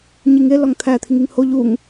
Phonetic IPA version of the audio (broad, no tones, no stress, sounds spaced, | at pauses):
ɲ i ŋ e l ɒ ŋ t̪ʰ æ t̪ʰ i ŋ i ŋ h o ʎ u ŋ